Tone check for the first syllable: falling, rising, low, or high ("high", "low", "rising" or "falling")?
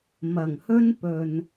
low